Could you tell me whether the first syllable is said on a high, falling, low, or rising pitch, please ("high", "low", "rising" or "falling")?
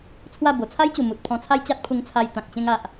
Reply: falling